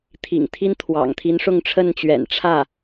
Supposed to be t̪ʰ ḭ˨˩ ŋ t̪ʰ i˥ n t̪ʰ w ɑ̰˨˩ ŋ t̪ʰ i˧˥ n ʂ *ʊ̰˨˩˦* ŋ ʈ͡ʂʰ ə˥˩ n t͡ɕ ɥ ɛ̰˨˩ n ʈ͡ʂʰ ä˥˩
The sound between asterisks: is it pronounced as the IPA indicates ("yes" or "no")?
no